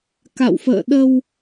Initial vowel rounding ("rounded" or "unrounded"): unrounded